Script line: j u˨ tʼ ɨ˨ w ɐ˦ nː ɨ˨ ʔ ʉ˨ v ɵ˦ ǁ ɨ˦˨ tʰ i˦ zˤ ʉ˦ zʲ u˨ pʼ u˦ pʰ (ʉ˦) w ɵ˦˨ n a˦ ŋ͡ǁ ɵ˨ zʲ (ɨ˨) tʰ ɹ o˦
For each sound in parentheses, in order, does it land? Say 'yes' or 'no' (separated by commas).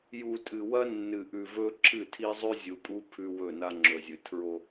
yes, yes